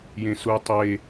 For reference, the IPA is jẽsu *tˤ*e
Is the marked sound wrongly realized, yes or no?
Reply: no